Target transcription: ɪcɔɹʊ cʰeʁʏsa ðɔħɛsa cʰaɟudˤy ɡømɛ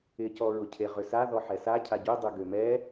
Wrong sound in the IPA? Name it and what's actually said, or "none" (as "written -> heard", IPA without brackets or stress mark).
none